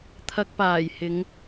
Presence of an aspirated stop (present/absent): present